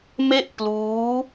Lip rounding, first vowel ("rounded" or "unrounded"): unrounded